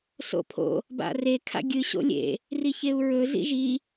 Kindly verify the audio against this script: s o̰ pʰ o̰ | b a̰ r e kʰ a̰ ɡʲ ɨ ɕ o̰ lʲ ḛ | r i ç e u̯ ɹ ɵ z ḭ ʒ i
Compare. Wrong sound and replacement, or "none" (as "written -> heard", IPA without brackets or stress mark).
none